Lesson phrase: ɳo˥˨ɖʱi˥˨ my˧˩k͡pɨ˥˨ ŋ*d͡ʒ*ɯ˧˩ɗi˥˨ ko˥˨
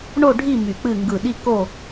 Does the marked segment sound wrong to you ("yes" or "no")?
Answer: yes